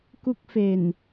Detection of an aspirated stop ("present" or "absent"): absent